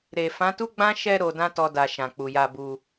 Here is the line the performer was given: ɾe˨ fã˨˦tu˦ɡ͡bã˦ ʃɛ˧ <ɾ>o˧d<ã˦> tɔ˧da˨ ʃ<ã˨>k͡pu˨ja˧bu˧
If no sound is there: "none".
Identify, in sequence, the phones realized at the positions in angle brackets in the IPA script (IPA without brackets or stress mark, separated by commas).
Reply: ɾ, ã˦, ã˨